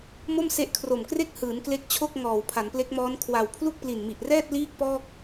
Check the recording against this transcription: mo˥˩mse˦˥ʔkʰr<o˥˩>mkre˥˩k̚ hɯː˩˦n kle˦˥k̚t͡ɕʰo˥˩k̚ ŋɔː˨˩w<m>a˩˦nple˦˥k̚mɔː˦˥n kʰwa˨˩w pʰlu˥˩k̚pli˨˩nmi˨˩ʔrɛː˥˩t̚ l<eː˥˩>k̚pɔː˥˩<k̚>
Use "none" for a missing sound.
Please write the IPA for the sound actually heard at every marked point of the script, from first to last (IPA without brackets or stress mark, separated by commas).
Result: o˨˩, pʰ, iː˥˩, k̚